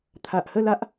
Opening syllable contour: low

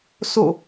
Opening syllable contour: falling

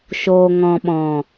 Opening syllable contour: low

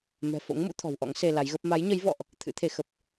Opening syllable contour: low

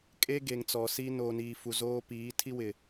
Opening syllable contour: high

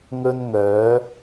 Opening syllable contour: high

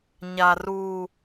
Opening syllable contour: low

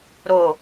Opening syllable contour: falling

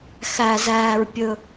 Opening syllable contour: low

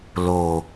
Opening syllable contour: low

